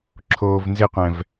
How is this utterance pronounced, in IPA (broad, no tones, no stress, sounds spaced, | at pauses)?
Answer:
ǁʰ oː v n z ɪ qʷ ɛ̃ v